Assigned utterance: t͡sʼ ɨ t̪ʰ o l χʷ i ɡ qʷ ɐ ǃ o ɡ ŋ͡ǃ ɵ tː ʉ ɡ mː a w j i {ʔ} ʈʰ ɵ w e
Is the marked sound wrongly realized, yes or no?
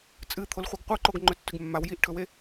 no